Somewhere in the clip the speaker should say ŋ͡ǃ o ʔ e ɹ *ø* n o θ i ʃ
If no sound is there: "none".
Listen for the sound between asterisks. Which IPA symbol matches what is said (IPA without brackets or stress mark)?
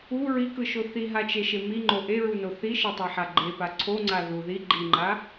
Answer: u